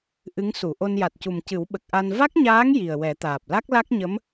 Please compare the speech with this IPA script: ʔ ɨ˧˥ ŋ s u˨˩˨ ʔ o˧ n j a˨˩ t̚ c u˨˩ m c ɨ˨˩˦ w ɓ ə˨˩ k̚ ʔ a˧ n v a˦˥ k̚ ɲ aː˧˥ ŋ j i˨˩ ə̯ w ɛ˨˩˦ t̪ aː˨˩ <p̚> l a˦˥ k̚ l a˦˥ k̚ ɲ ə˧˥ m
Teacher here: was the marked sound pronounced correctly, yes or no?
yes